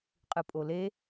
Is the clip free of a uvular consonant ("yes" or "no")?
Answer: no